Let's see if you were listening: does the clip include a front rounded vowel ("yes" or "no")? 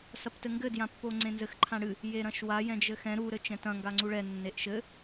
no